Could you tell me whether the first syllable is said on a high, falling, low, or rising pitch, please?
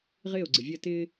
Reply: falling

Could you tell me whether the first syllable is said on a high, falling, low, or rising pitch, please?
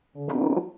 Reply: rising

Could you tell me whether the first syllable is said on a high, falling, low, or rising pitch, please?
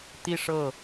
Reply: falling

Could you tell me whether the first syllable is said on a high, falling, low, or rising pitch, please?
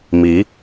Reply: rising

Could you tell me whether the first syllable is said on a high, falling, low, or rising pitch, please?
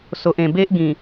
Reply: low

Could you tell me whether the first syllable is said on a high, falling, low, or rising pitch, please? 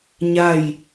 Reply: falling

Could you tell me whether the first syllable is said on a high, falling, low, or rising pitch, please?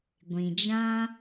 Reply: low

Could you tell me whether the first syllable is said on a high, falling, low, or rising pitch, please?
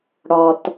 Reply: low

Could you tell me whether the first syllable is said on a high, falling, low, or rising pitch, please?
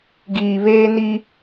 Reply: low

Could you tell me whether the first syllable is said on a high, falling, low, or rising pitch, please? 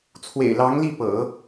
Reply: low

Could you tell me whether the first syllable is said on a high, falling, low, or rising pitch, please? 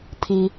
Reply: high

